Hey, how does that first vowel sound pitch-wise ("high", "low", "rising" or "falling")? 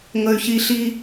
high